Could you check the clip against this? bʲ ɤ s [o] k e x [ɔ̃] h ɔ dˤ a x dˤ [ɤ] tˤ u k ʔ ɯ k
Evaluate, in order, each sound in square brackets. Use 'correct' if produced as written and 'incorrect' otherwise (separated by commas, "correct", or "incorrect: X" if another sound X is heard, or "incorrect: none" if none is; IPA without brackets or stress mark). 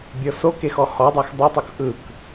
correct, incorrect: ɔ, incorrect: ɯ